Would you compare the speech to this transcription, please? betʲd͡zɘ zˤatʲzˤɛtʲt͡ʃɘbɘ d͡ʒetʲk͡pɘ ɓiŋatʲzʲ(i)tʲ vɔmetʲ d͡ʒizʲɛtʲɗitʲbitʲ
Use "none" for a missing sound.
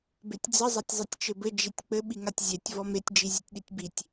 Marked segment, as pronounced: e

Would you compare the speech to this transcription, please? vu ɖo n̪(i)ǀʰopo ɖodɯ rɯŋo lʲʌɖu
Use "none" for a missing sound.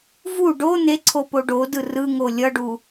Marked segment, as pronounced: e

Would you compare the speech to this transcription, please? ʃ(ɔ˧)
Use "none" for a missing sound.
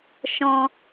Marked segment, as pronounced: ɔ̃˧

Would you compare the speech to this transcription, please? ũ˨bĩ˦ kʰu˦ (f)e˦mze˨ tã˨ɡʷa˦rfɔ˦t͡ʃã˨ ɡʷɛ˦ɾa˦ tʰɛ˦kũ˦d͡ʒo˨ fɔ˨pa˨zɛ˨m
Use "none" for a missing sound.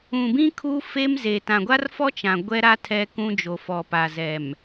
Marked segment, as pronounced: f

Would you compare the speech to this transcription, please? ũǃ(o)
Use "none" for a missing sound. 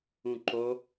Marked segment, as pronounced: o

